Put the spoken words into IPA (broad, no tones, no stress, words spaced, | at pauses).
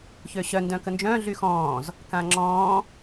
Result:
çøɕœ ndœ̃kənd͡ʒœ̃ ɮyxɔ̃ːz | kãŋ͡ǁɔ̃ː